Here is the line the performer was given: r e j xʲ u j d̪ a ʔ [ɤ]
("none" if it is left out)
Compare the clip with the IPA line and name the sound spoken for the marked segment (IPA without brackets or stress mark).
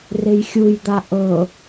ɤ